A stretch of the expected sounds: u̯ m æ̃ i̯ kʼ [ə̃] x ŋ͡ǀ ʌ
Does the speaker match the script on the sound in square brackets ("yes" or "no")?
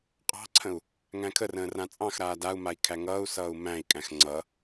no